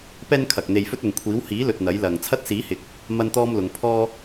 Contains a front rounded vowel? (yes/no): no